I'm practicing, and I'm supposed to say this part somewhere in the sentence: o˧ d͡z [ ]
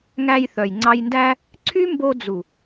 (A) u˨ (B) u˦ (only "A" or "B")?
A